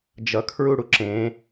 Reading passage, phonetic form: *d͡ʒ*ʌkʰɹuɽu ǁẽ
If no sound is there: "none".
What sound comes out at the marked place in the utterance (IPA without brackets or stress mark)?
d͡ʒ